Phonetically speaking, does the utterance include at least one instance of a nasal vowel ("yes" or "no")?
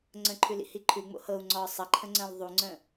yes